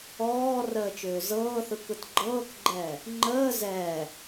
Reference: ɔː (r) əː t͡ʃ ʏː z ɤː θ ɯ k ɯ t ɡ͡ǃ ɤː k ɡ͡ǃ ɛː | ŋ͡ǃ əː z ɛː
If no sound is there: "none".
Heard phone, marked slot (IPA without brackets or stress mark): r